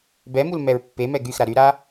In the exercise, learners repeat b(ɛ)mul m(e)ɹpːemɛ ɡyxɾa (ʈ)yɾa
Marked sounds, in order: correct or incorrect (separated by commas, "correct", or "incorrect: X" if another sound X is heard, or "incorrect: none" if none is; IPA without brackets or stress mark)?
correct, incorrect: ɛ, incorrect: ɾ